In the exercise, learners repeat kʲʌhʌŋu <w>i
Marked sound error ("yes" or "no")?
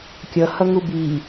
yes